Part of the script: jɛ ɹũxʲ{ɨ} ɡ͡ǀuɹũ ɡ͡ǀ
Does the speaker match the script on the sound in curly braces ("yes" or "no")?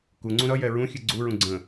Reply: yes